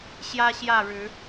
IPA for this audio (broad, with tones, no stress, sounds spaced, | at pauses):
ɕ j ä˦ ɕ j ä˥˨ ɻ ɻ̩˨˦